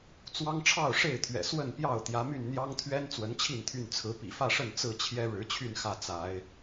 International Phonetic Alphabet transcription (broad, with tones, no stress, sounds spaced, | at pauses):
t͡s w ɑ˦ ŋ ʈ͡ʂʰ ɑ˥˨ ʊ̯ ʂ e˥˨ ɪ̯ t̪ʰ ɥ ɛ̰˨˩ s w ə˥˨ n p j ɑ˥˨ ʊ̯ t̪ j ä˨˦ m y˥˨ n n̪ j ɑ˦ ŋ t̪ʰ ɥ ɛ˦ n t͡s w ə˨˦ n t͡ɕʰ i˥˨ n t̪ʰ y˥˨ n t͡sʰ ɹ̩˨˦ p ḭ˨˩ f ä˥˨ ʂ ə˥˨ n t͡s ɹ̩˥˨ t͡ɕʰ j ɛ˦ ɻ ɻ̩˨˦ t͡ɕʰ y˥˨ n x ä˥˨ t͡s a˨˦ ɪ̯